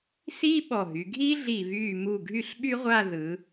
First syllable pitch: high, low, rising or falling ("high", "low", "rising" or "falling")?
high